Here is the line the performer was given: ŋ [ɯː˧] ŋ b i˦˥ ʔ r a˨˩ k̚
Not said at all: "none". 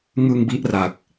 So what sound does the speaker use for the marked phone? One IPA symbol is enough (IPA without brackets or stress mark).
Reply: ɯ˧